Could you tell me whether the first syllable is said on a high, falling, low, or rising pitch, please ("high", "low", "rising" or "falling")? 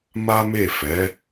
high